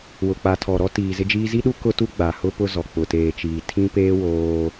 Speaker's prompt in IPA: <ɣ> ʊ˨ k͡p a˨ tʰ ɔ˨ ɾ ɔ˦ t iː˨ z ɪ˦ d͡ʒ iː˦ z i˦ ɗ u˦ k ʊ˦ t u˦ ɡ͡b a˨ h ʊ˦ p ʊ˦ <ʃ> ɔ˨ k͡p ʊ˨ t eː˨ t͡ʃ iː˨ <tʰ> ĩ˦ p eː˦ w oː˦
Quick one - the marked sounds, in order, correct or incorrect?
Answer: incorrect, incorrect, correct

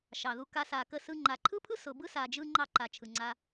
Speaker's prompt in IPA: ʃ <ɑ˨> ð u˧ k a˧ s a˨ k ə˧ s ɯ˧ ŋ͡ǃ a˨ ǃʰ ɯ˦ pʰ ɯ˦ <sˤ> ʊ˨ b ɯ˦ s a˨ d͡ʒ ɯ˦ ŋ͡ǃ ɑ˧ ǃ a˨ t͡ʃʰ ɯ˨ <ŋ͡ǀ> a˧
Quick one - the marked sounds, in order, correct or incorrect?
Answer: correct, incorrect, correct

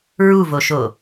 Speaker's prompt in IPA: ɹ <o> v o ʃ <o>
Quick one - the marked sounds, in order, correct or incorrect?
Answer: incorrect, correct

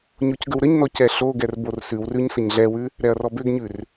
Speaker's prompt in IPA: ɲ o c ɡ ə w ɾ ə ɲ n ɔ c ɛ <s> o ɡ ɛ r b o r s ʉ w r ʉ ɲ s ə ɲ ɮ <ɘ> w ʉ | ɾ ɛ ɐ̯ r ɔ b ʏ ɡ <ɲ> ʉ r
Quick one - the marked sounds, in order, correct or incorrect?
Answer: incorrect, incorrect, correct

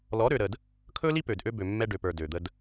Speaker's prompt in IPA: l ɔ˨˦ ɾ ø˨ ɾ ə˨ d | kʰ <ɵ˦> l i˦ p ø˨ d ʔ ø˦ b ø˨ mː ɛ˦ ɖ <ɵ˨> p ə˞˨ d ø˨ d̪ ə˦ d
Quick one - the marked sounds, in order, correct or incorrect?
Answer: correct, incorrect

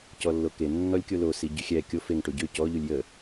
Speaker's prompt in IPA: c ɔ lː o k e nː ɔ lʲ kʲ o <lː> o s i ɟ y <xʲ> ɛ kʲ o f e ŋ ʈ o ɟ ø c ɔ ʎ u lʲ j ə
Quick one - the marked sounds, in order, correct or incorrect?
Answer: incorrect, correct

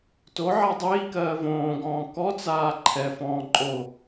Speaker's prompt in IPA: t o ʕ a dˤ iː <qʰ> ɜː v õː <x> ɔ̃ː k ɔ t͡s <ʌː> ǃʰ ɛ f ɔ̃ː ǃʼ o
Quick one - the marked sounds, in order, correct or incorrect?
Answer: incorrect, incorrect, incorrect

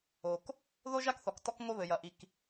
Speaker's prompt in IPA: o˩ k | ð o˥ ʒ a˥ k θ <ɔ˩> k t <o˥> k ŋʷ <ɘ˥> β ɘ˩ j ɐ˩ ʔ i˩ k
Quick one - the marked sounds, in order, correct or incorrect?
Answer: correct, incorrect, correct

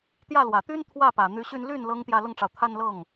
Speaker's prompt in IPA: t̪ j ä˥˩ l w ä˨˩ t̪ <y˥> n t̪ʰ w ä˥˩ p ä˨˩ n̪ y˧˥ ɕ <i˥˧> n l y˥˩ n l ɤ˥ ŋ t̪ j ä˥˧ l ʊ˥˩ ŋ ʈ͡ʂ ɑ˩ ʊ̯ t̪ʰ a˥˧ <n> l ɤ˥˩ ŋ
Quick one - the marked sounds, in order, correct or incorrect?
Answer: correct, incorrect, correct

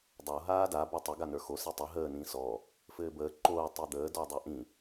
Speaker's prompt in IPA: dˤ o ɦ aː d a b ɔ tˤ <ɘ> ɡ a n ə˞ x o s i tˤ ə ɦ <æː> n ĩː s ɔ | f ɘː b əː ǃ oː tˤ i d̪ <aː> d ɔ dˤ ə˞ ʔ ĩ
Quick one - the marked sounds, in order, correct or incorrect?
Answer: correct, incorrect, incorrect

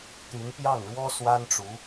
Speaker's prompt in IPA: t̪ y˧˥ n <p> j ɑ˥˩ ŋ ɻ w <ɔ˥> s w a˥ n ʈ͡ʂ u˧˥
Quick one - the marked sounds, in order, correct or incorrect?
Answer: correct, correct

